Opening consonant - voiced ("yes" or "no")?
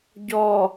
yes